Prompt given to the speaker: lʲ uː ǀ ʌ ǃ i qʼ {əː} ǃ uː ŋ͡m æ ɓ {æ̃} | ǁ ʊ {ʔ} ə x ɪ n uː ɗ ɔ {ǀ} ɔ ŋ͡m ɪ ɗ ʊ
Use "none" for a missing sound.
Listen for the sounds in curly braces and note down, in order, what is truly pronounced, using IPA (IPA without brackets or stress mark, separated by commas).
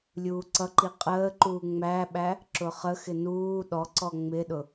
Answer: əː, æ, χ, ǀ